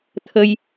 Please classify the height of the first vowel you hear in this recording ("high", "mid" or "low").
mid